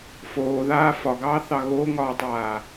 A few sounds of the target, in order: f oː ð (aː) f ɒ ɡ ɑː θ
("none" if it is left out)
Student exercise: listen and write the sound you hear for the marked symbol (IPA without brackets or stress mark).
aː